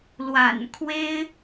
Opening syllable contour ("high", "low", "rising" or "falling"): low